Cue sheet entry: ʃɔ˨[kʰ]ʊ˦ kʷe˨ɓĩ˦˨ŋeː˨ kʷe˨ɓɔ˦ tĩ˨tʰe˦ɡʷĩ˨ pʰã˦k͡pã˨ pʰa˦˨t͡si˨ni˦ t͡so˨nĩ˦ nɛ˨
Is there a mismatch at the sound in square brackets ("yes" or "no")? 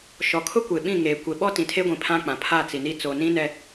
no